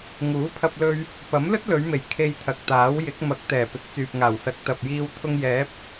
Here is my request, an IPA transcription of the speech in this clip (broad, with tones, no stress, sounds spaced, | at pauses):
ŋ uː˨˥ pʰ ɐ˧ p̚ l ɵ˧ ɥ | p ɐ˨˥ m l ɵ˥ t̚ l ɵ˨˧ ɥ m e˨˩ j kʰ e˧ j t̪ʰ ɐ˨ k̚ t̪ aː˨˥ w j ɪ˨˥ k̚ m ɐ˨˥ k̚ t̪ ɛː˨˩ p ɪ˨˥ k̚ t͡s yː˨ p̚ ŋ aː˨˩ w s ɐ˨˥ k̚ t̪ ɐ˨ p̚ j iː˧ w t̪ʰ ʊ˧ ŋ j ɛː˨˥ p̚